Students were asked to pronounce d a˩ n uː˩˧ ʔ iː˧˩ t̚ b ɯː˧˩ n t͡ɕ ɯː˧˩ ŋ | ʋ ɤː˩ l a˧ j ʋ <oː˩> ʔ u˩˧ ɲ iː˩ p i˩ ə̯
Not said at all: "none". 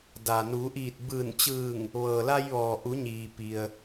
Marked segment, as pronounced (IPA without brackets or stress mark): ɔː˩